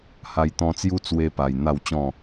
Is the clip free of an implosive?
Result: yes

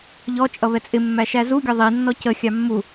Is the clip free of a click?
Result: yes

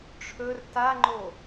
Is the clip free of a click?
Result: no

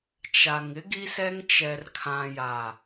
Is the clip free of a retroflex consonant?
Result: yes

